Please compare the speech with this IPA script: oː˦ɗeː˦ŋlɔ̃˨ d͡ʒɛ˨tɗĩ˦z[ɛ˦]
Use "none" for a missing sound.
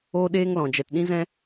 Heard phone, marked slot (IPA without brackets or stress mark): ɛ̃˦